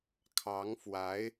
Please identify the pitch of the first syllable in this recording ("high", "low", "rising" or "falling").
rising